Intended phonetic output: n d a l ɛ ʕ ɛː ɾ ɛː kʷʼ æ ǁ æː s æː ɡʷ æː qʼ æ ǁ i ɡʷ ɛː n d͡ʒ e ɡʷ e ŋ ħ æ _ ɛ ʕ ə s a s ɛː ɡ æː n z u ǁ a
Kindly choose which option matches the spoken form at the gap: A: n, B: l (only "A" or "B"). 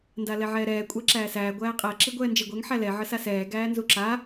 B